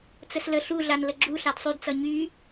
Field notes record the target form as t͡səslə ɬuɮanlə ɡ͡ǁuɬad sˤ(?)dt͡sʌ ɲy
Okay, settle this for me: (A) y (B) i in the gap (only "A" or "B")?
A